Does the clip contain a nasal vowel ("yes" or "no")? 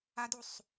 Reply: no